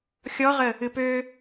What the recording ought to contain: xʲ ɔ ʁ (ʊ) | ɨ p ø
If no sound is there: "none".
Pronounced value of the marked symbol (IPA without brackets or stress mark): ə